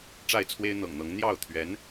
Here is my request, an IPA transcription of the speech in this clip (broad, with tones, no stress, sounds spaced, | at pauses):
ʈ͡ʂ a˥˩ ɪ̯ t͡sʰ w e˥ ɪ̯ n̪ ɤ̰˨˩ ŋ n̪ ɤ˧˥ ŋ n̪ j ɑ˥˩ ʊ̯ t̪ʰ ɥ ɛ˧˥ n